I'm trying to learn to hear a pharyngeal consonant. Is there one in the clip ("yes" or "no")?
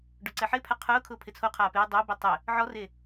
yes